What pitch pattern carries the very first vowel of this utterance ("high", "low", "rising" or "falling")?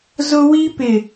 high